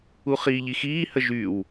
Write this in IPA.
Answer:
u χ iː ʎ i x iː h ə ʒ y w

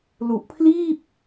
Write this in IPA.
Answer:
l u˨˩ ʔ pʰ l iː˥˩ p̚

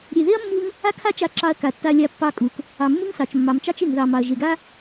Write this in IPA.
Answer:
ɾʲ e˨ ð e˦ ɐ̯ mː u˧ ŋ | a˦ kʰ a˦ t͡ʃ a˧ ǁ ɑ˧ ɐ̯ k a˨ tː a˧ lʲ a˧ pː ɑ˧ kʼ u˨ k | ɑ˨ mː u˦ ŋ s ɑ˨ t͡ʃ mː ɑ˨ m t͡ʃ ɑ˦ t͡ʃ e˨ ŋ ð ɑ˨ m ɑ˨ ɐ̯ ʒ e˨ ɡ a˦

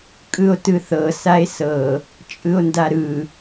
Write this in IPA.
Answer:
kʼ ɯ o̯ t ɯ θ ɤ s a e̯ s ɤ | t͡ʃʼ ɯ o̯ n d a ɾ ɯ

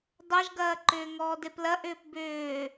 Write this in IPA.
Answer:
dˤ ʌ ʒ ɡ ɐː ǃ ʏː ŋ ɔː d e p l ɐ ʔ ʏː p b ʏː

